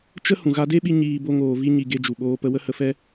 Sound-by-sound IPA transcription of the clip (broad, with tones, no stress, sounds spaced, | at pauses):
t͡ʃ ə˦ h ũ˨ ɣ a˧ d e˦ ɓ i˧ ɲ iː˧ b o˧ ŋ oː˨ v i˦ ɲ i˧ ɡ e˧ d͡ʒ u˨ ɓ oː˧ p ə˧ w ə˦ h ə˧ f ɛ˦